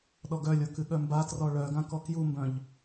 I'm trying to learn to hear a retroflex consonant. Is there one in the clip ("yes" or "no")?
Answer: yes